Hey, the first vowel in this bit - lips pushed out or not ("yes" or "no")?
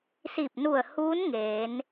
no